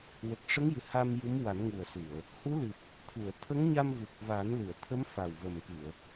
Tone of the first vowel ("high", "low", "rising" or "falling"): low